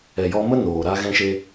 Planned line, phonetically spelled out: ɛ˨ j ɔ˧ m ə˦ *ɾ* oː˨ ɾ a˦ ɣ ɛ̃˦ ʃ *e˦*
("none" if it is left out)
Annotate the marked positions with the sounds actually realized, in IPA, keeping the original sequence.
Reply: n, e˦

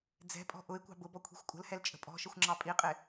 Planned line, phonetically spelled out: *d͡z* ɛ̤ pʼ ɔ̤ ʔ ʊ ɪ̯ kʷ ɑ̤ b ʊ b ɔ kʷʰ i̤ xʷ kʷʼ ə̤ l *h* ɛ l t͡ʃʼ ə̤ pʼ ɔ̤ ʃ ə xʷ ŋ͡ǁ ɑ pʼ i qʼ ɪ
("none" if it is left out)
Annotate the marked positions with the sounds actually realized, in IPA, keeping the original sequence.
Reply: d͡z, h

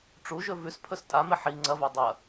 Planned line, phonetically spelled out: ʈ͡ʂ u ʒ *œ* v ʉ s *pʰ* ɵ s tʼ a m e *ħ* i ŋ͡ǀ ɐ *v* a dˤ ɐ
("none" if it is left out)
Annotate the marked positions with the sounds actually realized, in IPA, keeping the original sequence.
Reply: ɵ, pʰ, ħ, v

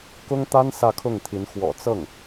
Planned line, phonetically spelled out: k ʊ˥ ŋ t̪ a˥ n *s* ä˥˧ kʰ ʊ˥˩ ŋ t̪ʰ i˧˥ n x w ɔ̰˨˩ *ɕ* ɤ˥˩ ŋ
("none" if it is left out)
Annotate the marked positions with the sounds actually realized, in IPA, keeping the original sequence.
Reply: s, t͡s

